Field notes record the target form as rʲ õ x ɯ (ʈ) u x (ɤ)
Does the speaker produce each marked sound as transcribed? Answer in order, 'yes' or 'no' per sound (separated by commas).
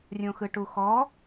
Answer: yes, no